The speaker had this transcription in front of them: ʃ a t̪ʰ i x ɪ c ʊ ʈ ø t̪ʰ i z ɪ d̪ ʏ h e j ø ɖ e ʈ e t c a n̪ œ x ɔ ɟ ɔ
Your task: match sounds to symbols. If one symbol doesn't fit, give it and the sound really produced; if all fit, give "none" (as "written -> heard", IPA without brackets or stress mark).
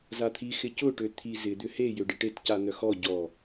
ʃ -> z